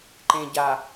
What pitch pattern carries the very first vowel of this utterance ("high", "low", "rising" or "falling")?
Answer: low